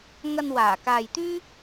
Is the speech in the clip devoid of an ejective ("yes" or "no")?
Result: yes